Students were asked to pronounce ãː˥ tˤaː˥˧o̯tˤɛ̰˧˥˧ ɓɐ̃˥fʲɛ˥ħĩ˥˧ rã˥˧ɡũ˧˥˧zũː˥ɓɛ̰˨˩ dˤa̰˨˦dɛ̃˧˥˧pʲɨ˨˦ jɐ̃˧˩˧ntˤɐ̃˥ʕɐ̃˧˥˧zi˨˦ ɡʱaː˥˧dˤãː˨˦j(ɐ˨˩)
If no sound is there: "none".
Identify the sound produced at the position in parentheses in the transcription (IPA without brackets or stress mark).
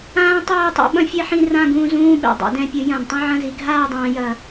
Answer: ɐ˨˩